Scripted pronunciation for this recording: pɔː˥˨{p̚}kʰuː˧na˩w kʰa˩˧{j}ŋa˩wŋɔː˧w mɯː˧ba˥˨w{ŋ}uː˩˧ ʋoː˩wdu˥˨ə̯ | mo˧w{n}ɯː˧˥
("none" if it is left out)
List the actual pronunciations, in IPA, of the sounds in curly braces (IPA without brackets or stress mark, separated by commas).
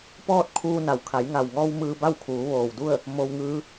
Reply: t̚, j, kʰ, ŋ